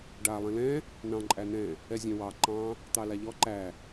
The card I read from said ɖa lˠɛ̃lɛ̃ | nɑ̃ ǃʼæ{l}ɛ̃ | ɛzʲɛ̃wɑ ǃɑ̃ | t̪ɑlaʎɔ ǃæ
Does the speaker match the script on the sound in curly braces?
no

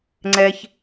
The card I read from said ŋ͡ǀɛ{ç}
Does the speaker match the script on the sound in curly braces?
yes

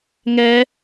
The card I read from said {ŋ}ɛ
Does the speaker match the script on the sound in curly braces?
yes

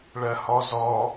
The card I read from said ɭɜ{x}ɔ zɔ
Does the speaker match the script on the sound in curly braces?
no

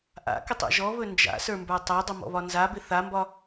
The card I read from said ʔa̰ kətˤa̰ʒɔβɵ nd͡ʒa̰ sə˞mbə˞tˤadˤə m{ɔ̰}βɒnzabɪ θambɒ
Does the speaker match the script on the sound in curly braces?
yes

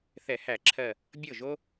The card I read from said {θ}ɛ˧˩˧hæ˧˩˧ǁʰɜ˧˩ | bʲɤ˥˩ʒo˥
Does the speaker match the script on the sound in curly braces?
yes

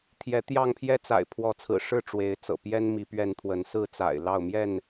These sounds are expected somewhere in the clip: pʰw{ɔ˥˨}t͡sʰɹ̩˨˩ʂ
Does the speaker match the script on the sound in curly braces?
no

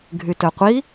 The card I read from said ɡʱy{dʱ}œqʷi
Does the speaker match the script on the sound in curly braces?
no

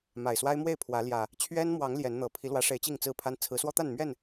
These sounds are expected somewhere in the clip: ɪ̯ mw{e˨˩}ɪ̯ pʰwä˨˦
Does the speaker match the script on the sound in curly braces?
no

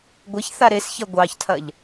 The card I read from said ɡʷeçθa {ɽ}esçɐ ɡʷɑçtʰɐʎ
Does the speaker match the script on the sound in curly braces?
no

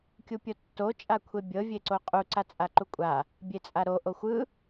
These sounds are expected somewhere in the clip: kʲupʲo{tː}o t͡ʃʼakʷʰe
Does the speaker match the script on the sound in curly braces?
yes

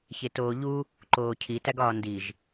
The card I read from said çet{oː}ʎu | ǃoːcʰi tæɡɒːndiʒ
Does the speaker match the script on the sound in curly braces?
yes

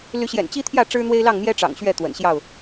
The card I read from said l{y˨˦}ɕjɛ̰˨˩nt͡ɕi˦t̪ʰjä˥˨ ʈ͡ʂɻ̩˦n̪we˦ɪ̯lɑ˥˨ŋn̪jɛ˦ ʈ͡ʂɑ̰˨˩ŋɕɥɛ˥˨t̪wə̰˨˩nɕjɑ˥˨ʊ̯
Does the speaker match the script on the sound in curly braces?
yes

